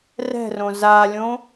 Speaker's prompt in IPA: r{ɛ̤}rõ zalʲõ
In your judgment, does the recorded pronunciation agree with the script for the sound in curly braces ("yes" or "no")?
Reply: yes